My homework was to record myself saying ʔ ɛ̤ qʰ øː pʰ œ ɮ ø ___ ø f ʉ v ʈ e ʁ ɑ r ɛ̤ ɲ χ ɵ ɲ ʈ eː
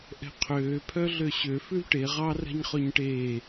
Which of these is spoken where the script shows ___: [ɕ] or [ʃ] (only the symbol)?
ɕ